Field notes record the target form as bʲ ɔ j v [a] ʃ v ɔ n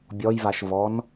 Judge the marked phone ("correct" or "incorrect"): correct